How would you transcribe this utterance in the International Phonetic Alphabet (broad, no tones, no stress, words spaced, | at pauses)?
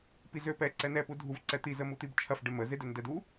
pizøpɛ ǀɛnɛpudʱuv ǀɛt̪i zəmut̪ibt͡ʃʰɐf ɖemə zedøndɛdu